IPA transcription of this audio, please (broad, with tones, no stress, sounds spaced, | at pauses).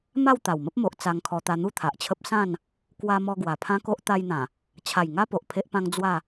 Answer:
m a˥˧ w t̪ a˨˩ w m ə˦ p̚ m o˨ ʔ t͡s a˧ ŋ kʰ ɔ˧ t̪ a˧ n̪ u˥˧ t̪ʰ a˨ ʔ t͡ɕʰ ə˦ p̚ s ã˥˧ n | k w a˧ m ɔ˧ ɡ w a˨˩ pʰ ã˦ k o˦ ʔ t̪ a˧ j n̪ ã˨˩ | t͡ɕʰ a˨˩ j ŋ a˦ p o˨ ʔ pʰ e˦ ʔ p ã˦ ŋ d͡z w a˥˧